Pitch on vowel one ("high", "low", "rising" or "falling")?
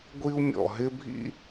high